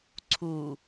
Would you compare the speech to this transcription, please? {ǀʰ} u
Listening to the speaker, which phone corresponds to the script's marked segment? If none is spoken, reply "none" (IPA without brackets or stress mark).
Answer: ǀʰ